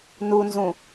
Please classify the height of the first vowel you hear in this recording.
high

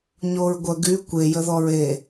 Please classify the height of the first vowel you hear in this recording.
mid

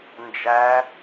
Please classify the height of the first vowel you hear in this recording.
low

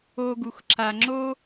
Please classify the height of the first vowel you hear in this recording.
mid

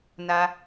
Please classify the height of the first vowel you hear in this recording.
low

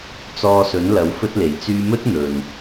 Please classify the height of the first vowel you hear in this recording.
mid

